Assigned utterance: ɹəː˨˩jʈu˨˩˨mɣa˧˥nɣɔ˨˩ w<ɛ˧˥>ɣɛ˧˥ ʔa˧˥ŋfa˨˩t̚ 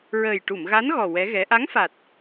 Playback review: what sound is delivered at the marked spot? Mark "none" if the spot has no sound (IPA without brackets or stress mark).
ɛ˧˥